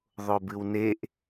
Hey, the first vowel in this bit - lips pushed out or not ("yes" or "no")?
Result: yes